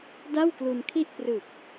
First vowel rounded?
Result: no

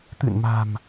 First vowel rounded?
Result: no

